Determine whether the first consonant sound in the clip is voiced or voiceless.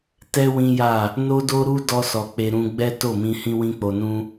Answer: voiceless